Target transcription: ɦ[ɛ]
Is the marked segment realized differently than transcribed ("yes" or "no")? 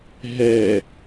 no